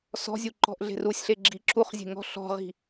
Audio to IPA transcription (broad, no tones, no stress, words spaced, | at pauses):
sɔ̤zʲu ǃɔ̤ʔɮe̤rusʲɬe ɡ͡ǁiǁuχzʲe̤ ŋɔ̤ɬɔ̤ʁi̤